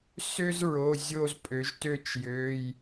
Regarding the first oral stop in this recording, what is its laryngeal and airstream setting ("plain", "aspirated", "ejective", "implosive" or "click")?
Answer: ejective